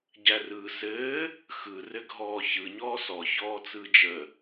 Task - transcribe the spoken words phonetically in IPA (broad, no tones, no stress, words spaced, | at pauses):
ɟærɯːsɘː | xɯ rɘɡʱɔːçɯ ɲɔːsɔ çɔːt͡sɯːd͡ʒə